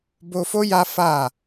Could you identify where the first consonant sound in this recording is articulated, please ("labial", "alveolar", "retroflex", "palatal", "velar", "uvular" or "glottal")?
labial